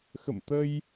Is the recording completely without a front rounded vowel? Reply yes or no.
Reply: yes